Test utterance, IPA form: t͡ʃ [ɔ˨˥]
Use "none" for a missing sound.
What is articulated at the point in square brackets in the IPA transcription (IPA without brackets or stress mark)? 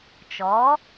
ɔ˨˥